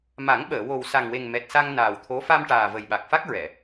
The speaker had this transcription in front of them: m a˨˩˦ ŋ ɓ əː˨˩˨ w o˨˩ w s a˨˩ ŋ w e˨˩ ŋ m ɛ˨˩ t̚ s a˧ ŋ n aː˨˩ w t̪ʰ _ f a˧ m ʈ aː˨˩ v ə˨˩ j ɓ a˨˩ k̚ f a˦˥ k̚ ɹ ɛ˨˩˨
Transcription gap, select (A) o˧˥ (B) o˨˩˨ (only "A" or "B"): A